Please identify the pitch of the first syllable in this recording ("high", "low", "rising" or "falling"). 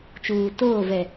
low